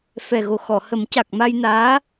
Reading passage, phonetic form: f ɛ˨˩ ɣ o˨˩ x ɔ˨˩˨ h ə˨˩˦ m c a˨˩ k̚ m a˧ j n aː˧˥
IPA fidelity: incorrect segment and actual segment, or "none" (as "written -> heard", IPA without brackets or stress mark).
none